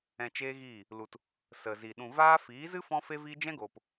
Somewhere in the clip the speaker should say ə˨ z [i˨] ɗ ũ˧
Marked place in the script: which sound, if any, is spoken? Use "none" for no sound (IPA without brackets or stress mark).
i˨